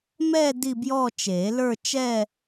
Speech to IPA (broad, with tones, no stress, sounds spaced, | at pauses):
m ɛ˥˧ d i˥˧ b j ɔ˥˧ t͡ʃ e˨˩˦ l ə˞˥˧ t͡ʃ ɛ˥˧